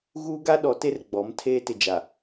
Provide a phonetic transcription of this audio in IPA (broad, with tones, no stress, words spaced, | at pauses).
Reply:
ɣuː˦ɡa˦ɗɔ˨˦ te˦rɡ͡bɔ˨˦m tʰeː˦tɪ˨d͡ʒa˨